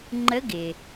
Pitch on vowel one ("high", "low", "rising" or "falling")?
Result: rising